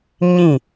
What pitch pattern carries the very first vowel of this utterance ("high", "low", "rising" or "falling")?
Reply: falling